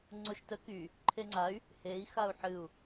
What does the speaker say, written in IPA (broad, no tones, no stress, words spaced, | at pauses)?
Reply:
ŋ͡ǀoʃtə ky | ǃʰeŋ͡ǀay̯ | hei̯ xau̯ħɨu̯